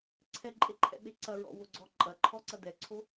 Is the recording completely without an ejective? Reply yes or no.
no